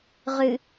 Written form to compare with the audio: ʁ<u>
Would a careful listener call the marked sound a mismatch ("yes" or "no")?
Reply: yes